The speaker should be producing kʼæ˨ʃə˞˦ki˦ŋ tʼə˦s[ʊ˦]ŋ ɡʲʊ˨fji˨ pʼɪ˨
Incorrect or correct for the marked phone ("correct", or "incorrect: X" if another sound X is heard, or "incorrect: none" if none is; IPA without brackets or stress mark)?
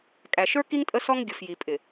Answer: incorrect: ɔ˦